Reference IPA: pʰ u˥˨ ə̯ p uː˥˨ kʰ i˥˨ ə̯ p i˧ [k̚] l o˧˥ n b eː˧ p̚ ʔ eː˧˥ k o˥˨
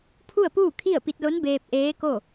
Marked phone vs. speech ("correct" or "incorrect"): incorrect